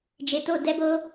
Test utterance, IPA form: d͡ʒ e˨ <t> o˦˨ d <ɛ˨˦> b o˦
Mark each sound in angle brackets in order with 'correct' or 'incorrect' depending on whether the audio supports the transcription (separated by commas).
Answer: correct, incorrect